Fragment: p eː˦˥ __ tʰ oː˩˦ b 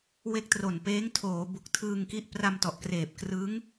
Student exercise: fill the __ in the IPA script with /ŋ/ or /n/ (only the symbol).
ŋ